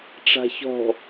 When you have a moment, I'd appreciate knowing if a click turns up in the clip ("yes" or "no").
no